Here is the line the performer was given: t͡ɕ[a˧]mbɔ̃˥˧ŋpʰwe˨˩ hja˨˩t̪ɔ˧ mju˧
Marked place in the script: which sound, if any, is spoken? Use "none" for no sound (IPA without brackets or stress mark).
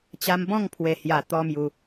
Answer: a˧